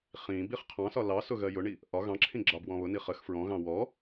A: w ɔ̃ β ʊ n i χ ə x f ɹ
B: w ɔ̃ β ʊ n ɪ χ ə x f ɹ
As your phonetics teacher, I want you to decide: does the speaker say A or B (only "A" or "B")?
A